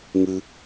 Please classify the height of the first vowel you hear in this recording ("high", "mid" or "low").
high